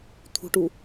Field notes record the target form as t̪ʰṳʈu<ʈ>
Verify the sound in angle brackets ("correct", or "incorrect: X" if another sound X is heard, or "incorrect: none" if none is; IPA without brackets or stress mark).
incorrect: none